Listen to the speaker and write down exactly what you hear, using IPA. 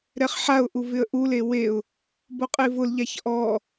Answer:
ɾ ɛ χ ħ a ʊ̯ ʔ u v ɪ ə̯ ʔ u l e w e ʊ̯ | b o qʼ e v ʊ l ʎ a ç ʔ ɔ

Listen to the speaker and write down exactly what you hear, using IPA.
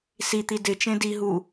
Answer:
s i t̪ i d ɪ t͡ʃ ẽ d i ɦ u

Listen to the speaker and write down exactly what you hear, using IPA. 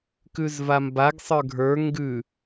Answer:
k ʉ z v a m b a ɡ sˤ ə˞ ɡʱ ə˞ ŋ ɡ ʉ

